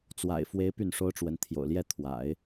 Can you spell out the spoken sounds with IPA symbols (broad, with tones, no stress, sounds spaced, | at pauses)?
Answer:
t͡s w a̰˨˩ ɪ̯ f w e˧˥ ɪ̯ p y˥˩ n ʂ o˥ ʊ̯ ʈ͡ʂ w ə˧˥ n t̪ʰ j o̰˨˩ ʊ̯ l j ɛ˥˩ t̪ʰ w a̰˨˩˦ ɪ̯